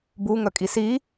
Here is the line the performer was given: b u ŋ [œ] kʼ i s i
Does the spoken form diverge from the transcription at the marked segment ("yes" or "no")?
no